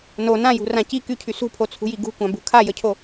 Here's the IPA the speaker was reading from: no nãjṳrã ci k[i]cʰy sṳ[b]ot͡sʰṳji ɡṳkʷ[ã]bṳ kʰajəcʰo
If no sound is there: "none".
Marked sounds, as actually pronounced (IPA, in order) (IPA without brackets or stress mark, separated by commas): y, pʰ, ã